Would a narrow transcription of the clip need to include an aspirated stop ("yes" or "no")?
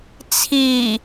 yes